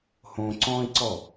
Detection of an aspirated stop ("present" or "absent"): absent